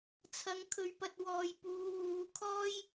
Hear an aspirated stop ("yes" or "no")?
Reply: yes